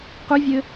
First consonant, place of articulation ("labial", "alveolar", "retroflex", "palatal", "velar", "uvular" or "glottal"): uvular